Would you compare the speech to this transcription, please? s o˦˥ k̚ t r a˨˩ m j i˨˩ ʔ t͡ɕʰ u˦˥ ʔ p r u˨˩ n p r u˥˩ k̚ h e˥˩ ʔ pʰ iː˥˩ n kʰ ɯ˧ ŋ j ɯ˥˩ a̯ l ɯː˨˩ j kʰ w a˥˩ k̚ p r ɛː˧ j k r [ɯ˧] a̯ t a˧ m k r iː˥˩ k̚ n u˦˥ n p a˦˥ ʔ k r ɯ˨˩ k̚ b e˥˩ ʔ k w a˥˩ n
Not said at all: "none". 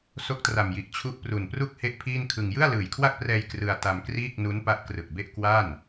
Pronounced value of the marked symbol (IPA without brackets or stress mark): ɯ˧